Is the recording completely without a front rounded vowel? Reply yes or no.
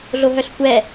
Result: no